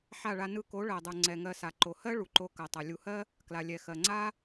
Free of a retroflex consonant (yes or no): no